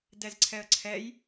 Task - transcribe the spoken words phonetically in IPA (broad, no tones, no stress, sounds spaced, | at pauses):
d ɛ z ǀʰ ɛ ə̯ ǀʰ ɛ j